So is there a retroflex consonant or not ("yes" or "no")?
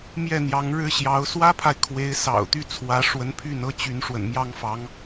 yes